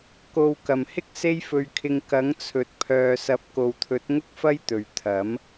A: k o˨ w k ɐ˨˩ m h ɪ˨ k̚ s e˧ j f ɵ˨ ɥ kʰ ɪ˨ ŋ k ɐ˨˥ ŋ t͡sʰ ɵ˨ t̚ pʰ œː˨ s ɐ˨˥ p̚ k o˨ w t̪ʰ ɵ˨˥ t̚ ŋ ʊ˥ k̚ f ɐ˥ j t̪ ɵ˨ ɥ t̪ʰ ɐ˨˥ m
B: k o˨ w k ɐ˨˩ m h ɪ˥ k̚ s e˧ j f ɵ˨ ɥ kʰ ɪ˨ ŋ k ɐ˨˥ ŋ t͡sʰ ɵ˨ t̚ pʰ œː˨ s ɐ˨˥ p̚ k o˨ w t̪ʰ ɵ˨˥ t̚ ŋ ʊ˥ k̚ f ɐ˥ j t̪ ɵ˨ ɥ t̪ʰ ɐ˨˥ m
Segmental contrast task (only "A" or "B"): B